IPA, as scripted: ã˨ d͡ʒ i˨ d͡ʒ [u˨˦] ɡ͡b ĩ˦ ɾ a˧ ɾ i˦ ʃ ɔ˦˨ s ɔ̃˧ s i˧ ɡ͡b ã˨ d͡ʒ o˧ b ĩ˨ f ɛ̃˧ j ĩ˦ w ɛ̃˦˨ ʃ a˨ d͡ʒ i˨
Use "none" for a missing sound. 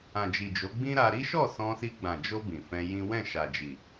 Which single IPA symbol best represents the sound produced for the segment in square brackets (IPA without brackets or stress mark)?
o˨˦